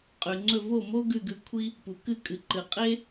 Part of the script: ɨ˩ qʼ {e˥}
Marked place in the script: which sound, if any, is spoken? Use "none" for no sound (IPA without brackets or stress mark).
e˥